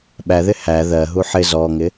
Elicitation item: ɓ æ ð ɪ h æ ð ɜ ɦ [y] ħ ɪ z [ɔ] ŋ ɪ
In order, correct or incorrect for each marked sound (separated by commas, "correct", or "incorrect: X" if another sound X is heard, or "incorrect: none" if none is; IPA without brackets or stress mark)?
incorrect: u, correct